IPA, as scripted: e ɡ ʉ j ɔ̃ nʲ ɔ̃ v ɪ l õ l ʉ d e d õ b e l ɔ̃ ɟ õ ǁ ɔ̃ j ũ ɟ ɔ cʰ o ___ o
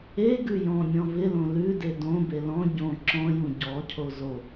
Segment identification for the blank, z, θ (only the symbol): z